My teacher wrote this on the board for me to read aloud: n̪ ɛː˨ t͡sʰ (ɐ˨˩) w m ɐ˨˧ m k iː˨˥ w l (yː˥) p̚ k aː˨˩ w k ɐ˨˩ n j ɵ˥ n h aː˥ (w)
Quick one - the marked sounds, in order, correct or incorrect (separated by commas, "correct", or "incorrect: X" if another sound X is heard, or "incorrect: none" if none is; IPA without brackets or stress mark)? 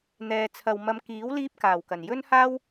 incorrect: ɐ˨, incorrect: iː˥, correct